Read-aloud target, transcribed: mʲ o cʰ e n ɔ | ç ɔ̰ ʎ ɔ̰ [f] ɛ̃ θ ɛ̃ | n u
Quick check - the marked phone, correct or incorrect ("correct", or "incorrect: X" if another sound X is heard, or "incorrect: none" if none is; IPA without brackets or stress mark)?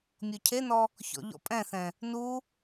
incorrect: pʼ